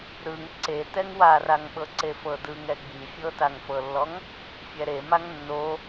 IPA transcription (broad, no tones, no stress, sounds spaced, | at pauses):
ɾ ɯ ŋ ǀ e t ɛ ŋ w a r a ŋ ɓ ɤ ǀ e f ɤ d ɯ ŋ ɛ ɡ͡b i fʲ ɤ t a ŋ f ɤ lː ɔ ŋ | fʲ ɛ ɾ e m a ŋ nː o